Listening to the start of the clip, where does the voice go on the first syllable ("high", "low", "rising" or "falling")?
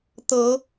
rising